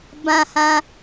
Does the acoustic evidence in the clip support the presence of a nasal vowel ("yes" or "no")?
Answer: yes